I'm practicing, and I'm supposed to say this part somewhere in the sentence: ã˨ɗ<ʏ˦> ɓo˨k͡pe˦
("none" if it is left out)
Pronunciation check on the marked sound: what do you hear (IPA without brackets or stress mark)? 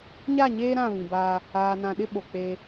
ɪ˦